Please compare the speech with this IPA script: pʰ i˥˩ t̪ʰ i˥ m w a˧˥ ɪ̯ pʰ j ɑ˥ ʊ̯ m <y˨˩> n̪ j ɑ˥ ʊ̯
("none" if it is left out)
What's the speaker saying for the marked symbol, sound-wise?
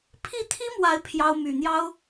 y˨˩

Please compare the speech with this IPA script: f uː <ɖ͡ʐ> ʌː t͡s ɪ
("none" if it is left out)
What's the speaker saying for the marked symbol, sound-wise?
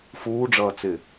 ɖ͡ʐ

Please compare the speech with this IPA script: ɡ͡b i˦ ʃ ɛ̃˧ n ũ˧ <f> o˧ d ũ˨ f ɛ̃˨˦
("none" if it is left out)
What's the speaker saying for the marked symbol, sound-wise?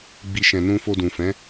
f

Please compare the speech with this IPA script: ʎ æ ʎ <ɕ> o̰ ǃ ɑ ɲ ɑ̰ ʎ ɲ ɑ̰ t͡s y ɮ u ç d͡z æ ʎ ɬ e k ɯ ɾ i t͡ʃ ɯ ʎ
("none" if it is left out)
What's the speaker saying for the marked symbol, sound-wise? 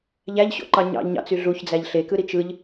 ɕ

